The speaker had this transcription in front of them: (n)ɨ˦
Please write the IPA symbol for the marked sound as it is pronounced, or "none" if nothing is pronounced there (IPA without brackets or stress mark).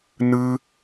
n